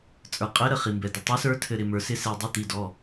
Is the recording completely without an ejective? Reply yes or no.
no